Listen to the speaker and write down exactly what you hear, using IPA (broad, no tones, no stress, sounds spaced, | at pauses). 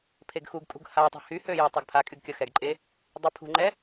pʰ e ɡ x u ɡ kʼ ṳ ɡ h a tˤ ṳ h y h ø j ø tˤ ɛ ɡ pʰ a kʼ y ɡ kʲ ʌ x ɛ ɡ ǃʼ e | dˤ ø pʰ ṳ ŋ͡ǃ ɛ